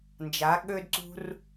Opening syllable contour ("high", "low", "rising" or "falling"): rising